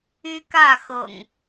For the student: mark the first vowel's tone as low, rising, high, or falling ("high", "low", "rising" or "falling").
high